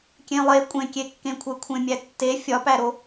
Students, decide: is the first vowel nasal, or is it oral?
nasal